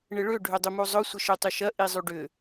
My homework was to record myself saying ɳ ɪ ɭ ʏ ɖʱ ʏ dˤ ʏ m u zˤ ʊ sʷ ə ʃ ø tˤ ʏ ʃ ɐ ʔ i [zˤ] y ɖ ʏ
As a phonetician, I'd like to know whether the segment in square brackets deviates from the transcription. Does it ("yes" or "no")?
no